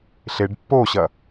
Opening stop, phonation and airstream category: plain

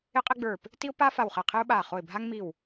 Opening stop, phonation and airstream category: ejective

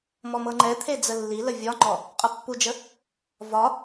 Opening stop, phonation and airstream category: click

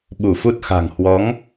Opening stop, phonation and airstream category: implosive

